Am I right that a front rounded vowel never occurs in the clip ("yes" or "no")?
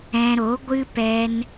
yes